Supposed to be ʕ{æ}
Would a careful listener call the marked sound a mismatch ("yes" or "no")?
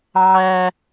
no